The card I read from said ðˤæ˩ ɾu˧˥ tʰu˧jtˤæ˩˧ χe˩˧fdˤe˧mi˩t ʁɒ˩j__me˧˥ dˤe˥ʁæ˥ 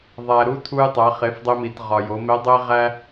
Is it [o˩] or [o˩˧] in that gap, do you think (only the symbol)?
o˩˧